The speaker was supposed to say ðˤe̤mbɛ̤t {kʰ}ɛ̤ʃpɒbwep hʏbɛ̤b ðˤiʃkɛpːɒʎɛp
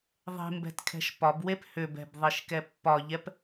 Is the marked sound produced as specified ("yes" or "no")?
yes